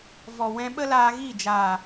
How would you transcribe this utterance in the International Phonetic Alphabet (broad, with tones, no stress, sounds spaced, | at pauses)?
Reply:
v ɔ˨ w ɛ̃˧ ɓ ə˦ l aː˧ ɣ i˦˨ d͡ʒ aː˨